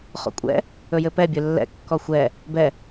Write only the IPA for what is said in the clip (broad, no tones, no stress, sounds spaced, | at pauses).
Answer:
χ o̰ kʷʼ ɛ̰ | ɵ j ɘ p ɛ bʲ ɵ lː ɛ̰ kː ɔ xʷ ɛ | b ɛ